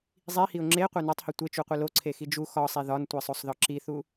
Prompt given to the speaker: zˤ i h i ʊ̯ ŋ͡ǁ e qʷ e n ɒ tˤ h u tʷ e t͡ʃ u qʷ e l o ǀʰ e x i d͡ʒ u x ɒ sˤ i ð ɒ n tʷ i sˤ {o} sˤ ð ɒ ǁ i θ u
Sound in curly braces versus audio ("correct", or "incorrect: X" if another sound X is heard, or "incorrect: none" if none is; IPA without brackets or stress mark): correct